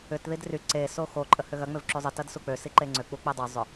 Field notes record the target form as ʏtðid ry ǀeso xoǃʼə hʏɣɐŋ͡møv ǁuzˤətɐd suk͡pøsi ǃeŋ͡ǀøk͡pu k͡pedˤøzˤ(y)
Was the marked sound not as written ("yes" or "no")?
yes